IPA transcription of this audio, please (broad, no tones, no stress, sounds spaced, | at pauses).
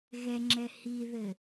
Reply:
ɣ ɛ ŋ͡ǁ ɛ h i ð ɘ